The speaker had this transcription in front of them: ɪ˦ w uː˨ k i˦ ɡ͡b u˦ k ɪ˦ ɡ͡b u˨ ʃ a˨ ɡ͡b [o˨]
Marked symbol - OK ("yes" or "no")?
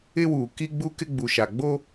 no